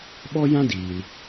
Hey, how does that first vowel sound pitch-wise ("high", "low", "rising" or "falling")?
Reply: high